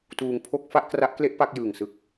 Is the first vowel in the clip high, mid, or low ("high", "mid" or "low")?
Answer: high